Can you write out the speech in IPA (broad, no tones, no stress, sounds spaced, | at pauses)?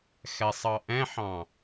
x ɛ sˤ ɑ ʔ ɛ̃ ħ ɑ̃